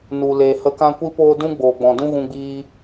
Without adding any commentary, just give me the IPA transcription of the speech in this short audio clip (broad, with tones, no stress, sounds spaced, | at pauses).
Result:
n u˨ l eː˨ h ə˧ k ã˦ kʷ i˦ p oː˦ d ũ˦ ɡ͡b oː˨ ɡ͡b ɔ̃˨ d ũ˦ ɣ ũ˦ ɡ͡b iː˦